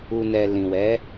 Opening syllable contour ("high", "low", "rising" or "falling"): low